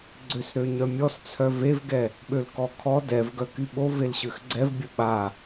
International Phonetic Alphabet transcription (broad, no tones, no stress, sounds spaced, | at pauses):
ɡ͡ǀ ø s ɾ ø ɲ œ mʲ ɔ s t͡sʰ œ v e v ɡ ɛ | ɓ ø l k ɔ kʰ ɔ d ɛ v ɡ œ k y ɓ o v e l ɕ ø x ɡ͡ǀ ɛ v bʲ ə ɓ a